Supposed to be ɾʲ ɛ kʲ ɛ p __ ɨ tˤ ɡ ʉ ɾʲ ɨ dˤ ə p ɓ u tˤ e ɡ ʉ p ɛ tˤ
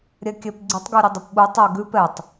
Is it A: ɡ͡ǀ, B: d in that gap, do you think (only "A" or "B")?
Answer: A